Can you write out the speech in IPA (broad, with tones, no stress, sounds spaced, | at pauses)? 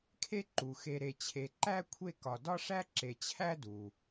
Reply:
kʰ e˦ ǃ u˩ x e˨ ɾ e˨ t͡ɕʰ e˨ ǃ æ˦ kʷʰ e˦ k ɒ˨ d ɒ˦ ʂ æ˦ ǁ e˨ t͡ɕʰ æ˦ d u˩